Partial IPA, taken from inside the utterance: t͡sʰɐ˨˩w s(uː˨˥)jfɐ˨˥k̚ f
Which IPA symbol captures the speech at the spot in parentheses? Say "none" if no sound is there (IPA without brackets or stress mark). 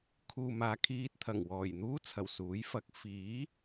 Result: uː˨˥